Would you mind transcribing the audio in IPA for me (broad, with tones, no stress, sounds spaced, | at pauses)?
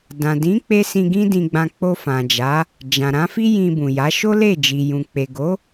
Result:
d ã˨ d ĩ˨˦ k͡p e˦ s ĩ˧ ɡ ĩ˦ d ĩ˧ ɡ͡b ã˧ k͡p o˧ f ã˨ d͡ʒ a˨˦ | d͡ʒ ã˨ ɾ ã˨˦ f i˦ j ĩ˧ b ũ˨ j a˨˦ ʃ o˦ l e˦˨ d͡ʒ i˨ j ũ˨ k͡p e˨ ɡ o˨˦